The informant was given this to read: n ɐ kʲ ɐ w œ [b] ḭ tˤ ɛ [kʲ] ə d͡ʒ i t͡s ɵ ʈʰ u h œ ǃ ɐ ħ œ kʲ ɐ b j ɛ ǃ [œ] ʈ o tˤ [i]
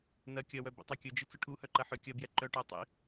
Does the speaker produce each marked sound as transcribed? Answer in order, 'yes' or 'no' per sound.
yes, yes, yes, no

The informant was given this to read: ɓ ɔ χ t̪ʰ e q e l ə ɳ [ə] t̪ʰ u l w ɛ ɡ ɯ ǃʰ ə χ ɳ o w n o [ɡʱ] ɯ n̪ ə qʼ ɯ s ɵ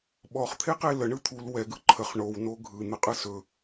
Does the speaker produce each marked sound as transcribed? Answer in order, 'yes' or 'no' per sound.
no, yes

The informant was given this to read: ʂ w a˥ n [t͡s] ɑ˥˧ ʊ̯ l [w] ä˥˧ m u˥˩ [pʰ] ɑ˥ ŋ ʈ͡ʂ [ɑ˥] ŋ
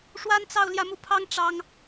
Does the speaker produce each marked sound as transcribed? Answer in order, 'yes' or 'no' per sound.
yes, no, yes, yes

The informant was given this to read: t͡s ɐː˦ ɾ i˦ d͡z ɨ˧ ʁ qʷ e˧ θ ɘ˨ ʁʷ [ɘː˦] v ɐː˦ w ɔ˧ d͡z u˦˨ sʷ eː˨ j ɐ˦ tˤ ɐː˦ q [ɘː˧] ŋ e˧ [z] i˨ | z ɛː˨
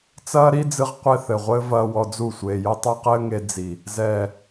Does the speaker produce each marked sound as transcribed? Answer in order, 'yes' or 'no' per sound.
yes, no, no

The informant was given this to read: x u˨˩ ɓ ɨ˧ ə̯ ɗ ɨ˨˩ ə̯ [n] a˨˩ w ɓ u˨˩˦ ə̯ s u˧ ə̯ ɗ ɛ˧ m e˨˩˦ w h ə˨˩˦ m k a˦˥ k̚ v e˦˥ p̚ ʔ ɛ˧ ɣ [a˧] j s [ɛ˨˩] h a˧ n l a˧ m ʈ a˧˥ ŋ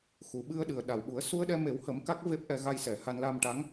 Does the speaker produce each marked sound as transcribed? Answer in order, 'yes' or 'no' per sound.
no, yes, yes

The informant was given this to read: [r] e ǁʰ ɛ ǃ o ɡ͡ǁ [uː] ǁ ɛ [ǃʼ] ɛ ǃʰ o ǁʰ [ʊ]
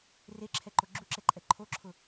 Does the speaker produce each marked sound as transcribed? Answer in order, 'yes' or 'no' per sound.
yes, no, yes, yes

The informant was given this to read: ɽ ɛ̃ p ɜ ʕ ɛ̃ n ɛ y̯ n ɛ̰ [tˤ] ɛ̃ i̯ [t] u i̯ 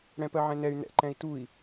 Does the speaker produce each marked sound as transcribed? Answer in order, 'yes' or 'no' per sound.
no, yes

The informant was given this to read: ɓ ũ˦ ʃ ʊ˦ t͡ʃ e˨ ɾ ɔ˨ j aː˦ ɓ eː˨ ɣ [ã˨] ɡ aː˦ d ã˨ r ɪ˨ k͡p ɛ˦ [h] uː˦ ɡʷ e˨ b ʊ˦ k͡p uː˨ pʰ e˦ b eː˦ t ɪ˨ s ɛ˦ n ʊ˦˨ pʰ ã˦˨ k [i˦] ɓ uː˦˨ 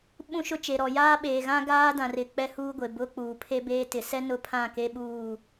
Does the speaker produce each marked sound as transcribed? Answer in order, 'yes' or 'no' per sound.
no, yes, no

